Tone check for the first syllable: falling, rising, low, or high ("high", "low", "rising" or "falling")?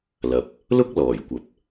low